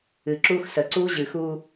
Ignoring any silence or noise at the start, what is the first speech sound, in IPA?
ɨ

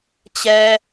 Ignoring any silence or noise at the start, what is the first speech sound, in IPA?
t͡ɕ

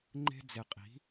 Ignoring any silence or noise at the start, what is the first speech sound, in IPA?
ŋ͡ǃ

